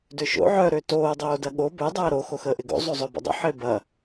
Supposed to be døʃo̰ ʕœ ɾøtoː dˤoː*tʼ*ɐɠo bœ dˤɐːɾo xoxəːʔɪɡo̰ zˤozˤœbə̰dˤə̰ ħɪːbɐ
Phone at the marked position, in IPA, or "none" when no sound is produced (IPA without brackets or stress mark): d